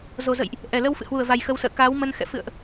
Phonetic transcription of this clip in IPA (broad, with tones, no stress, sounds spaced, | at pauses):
z o˨˩ z ə̰˧˨ j ʔ | ʔ ɛ˨˩ l ə˧ w f ɨ̰˧˨ h w u˧˩ ə̯ v a˨˩ j x ə˨˦ w s ə̰ː˧˨ k aː˨˦ w m ə˧ n x ɛ̰˧˨ f ɨ̰˧˨ ə̯ ʔ